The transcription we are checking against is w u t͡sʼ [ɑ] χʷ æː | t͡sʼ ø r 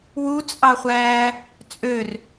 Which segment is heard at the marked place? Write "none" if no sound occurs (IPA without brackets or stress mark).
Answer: ɑ